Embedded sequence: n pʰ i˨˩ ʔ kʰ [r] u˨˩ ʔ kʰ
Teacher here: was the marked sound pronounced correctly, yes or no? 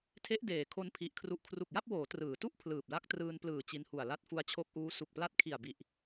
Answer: yes